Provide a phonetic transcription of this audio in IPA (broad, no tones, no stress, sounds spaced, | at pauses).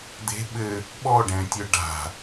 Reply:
d̪ e̤ ɓ ɘ | ɓ ɔ ɖ ɛ̃ tʲ œ ɖ a̤